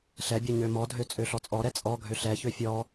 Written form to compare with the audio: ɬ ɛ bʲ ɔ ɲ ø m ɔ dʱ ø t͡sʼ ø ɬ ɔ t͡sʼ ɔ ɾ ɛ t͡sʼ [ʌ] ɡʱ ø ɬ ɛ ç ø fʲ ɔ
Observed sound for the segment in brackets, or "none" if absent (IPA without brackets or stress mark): ɔ